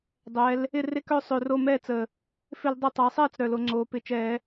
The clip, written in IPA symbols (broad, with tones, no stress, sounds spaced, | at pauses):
dˤ ɛ˩˧ l | ɪ˥˩ r ɪ˥˩ k œ˥˩ sˤ ø˨˩ r o˥˩ m ɛː˥˩ t͡s ə˨˩ | f ɪ˧˩˧ l dˤ ɪ˨˩ tˤ a˩˧ sˤ ɛː˥˩ t͡s ɾ œ˨˩ l o˩˧ ŋ͡ǀ oː˩˧ p ɪ˩˧ t͡ʃ ɛː˧˩˧